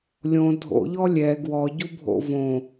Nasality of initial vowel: nasal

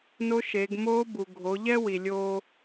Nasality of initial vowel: oral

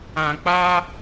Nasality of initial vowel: nasal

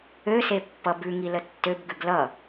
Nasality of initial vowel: oral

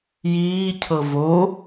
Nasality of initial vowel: oral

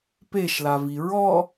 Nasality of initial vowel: oral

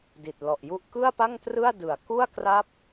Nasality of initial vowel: oral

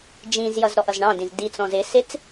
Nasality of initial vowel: nasal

